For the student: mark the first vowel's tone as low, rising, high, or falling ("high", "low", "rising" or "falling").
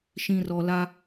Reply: low